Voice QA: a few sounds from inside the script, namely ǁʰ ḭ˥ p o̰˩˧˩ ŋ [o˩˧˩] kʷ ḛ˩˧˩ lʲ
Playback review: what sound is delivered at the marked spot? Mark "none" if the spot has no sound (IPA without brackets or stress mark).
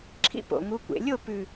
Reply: u˩˧˩